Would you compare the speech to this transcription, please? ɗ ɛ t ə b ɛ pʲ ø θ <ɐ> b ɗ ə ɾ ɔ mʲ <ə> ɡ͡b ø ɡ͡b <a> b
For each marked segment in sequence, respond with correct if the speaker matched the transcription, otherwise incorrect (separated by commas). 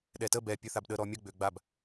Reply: incorrect, correct, correct